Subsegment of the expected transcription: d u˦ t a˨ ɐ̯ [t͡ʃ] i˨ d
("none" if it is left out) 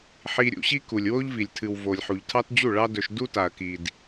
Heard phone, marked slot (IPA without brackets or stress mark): k